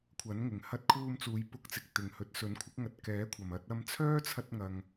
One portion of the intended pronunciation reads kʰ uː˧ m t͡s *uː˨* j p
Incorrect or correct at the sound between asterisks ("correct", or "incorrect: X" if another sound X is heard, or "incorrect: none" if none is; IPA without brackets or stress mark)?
incorrect: uː˨˧